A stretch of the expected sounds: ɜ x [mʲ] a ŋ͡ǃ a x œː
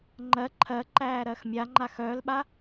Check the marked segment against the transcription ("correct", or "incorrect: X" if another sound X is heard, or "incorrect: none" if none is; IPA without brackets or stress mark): correct